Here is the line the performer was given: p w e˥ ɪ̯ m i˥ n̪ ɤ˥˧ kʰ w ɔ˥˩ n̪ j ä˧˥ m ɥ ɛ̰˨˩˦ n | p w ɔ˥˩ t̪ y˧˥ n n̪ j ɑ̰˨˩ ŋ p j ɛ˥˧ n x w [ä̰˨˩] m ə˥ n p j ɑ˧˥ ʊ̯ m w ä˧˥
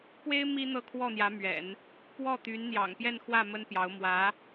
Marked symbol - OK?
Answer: no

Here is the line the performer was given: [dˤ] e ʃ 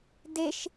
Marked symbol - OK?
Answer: no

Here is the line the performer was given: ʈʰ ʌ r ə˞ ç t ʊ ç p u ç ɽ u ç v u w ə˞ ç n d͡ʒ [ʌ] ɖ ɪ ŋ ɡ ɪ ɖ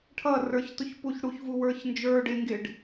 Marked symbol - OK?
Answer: no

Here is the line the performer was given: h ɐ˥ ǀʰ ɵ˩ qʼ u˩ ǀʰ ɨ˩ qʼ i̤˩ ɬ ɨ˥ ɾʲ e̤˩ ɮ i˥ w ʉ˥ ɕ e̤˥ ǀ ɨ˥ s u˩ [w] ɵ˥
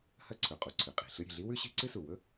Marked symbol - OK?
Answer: yes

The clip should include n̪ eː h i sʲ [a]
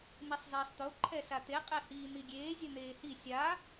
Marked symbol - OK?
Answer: yes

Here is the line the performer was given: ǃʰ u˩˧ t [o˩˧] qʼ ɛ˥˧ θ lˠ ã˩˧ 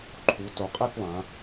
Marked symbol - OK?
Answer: yes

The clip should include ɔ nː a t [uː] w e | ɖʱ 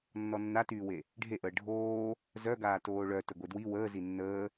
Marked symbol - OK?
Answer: no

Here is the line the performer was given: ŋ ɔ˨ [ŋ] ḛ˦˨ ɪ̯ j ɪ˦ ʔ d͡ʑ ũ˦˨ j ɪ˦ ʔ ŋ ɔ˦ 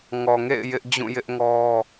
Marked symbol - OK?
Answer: yes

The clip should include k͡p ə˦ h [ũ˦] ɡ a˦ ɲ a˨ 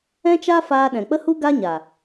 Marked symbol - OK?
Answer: no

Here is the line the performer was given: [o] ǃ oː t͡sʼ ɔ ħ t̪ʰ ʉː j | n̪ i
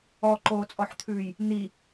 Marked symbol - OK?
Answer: no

